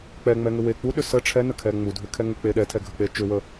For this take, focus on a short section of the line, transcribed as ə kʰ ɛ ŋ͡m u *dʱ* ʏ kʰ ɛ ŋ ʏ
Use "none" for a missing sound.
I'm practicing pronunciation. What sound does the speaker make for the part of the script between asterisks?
dʱ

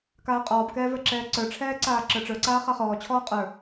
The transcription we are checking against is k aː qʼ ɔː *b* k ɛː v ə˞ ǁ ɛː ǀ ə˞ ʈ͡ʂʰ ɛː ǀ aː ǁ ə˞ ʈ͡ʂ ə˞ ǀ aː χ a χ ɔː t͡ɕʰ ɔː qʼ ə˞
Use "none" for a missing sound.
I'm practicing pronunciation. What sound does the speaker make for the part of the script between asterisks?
b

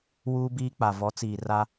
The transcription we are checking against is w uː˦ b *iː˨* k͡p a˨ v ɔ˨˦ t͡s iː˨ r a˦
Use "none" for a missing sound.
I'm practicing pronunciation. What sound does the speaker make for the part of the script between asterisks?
iː˦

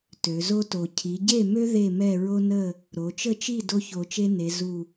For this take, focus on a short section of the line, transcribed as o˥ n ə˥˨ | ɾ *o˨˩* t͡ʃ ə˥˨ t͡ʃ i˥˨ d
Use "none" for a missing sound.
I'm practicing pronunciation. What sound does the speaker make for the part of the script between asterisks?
o˩˧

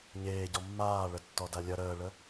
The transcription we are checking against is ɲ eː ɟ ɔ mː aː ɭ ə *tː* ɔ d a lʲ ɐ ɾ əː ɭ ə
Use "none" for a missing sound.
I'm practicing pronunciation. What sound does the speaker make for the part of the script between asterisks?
tː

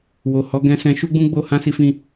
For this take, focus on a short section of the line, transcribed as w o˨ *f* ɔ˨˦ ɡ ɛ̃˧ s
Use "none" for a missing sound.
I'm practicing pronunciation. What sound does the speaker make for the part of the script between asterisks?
h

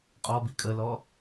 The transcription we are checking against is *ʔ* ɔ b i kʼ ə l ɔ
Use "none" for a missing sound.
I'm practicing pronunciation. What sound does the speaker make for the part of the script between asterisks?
qʼ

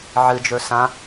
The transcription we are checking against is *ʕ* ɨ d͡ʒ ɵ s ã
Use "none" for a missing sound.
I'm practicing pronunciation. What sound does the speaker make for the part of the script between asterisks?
ʕ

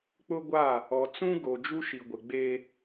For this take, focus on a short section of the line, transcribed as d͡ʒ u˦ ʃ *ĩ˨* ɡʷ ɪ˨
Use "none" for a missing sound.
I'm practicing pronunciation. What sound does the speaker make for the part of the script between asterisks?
i˨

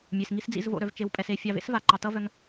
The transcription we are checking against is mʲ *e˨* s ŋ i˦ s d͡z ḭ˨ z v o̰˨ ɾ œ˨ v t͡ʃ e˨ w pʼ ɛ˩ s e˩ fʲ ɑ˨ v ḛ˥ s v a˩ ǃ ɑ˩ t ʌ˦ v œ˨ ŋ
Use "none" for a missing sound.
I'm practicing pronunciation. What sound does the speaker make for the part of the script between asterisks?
e˩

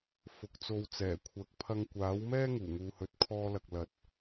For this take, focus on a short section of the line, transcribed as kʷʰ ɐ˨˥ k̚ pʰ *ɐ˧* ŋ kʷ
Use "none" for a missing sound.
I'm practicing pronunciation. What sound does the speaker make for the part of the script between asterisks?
ɐ˧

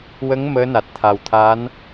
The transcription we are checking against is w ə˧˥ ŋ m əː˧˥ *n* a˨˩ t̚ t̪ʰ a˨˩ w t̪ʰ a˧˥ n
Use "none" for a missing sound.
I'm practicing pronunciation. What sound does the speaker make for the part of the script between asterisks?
n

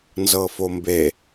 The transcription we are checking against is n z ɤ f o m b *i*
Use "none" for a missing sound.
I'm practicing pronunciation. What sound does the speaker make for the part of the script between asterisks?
e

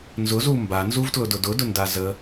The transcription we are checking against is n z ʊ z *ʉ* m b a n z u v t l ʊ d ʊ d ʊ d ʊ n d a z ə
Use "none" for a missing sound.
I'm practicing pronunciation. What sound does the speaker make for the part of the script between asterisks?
u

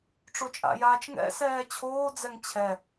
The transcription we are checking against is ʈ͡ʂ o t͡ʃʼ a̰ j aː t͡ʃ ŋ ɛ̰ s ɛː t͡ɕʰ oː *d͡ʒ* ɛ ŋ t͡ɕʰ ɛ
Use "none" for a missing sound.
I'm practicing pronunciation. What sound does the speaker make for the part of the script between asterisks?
d͡z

